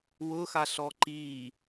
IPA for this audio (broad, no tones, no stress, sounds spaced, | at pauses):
w ʊ x a ɬ ɔ ǃ i